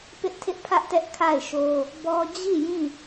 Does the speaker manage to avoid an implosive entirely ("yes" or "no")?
yes